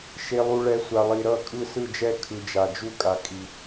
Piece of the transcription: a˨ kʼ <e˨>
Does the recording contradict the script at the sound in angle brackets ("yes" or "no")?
yes